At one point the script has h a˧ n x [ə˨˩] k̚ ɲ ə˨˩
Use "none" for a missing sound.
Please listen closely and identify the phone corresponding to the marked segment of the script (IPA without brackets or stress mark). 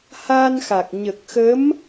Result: a˨˩